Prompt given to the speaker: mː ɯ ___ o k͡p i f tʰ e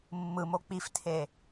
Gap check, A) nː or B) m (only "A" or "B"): B